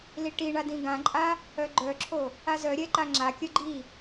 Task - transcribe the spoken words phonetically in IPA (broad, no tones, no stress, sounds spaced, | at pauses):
l i ʈ i ɳ a d ĩ ɡ ã ǃʼ a | œ ɡ͡ǃ œ ǁʰ o | a z œ ɾʲ ɛ ǃ a ŋ͡ǁ a kʲ œ ɡ͡ǃ i